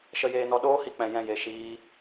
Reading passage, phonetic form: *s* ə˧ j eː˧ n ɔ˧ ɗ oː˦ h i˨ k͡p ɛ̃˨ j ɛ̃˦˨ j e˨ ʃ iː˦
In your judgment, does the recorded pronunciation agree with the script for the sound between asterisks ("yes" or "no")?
no